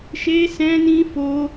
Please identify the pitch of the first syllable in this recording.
high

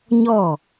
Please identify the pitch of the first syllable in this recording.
falling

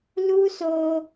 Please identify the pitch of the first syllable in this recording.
high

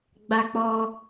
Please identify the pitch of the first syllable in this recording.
high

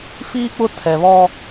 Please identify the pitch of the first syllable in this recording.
high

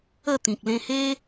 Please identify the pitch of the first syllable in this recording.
falling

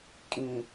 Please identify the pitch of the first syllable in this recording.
low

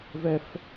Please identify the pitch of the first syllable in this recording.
high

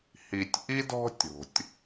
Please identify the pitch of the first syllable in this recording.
low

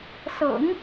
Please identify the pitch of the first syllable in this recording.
low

